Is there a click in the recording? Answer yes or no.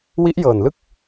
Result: no